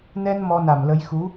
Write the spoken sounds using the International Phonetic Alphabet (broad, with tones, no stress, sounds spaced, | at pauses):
n ɛ˧ n m ɔ˧ n a˧˩ m l ə˨˦ j x u˨˦